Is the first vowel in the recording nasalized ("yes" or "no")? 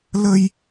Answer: no